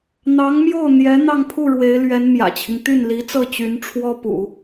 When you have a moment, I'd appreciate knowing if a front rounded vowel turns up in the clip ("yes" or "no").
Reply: yes